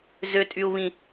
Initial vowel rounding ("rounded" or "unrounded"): rounded